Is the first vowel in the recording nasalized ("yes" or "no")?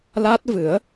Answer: no